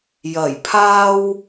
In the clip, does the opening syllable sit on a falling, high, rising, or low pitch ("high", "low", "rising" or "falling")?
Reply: low